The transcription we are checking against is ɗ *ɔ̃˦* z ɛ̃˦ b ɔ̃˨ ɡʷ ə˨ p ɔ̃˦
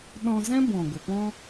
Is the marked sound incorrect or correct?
incorrect